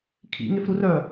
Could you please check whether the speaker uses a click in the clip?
no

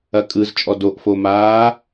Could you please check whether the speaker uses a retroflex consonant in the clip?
no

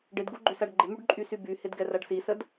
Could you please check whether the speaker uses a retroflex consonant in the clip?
yes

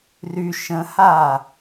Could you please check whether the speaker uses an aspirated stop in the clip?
no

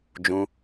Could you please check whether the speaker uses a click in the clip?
no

